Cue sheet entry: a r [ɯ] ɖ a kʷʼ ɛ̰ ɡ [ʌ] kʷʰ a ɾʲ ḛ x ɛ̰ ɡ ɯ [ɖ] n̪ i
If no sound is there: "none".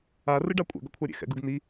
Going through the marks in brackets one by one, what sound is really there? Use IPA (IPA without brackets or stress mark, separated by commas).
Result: ɯ, ʌ, ɡ